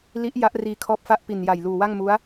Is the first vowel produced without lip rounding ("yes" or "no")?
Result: yes